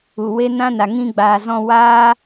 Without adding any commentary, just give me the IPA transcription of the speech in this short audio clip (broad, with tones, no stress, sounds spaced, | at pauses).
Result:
u˨ w e˦ n ã˦ n a˨ ŋ ĩ˧ ɡ͡b aː˨ z ɔ̃˧ w aː˦